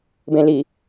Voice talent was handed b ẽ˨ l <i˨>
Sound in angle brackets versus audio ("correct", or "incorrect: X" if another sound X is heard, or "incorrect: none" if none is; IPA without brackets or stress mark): correct